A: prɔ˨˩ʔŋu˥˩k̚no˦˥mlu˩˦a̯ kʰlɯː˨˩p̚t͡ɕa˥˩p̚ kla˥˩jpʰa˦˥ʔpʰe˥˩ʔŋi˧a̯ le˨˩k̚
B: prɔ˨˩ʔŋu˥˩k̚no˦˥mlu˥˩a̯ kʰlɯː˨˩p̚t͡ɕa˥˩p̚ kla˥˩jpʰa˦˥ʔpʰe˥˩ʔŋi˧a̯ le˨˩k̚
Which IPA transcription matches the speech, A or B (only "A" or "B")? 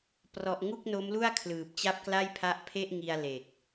B